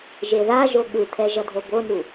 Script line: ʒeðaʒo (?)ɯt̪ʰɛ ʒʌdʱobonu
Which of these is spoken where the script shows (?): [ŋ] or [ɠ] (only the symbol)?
ɠ